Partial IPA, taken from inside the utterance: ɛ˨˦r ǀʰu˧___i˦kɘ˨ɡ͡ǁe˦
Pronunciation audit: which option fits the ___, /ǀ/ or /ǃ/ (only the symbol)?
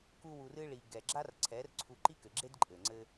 ǃ